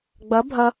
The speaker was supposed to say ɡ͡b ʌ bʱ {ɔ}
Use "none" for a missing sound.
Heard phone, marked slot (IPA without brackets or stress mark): ʌ